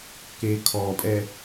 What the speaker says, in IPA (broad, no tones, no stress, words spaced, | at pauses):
kekʰɔpʼɛ